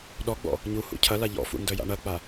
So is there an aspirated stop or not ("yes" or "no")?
yes